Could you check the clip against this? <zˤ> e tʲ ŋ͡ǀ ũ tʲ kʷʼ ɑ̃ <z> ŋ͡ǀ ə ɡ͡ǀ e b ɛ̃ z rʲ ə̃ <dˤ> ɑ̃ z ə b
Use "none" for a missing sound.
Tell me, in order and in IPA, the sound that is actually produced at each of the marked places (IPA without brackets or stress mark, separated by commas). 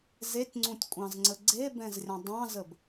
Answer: z, z, dˤ